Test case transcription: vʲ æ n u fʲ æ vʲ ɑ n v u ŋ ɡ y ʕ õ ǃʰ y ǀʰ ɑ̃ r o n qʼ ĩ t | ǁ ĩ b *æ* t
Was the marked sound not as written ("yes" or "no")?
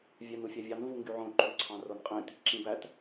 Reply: no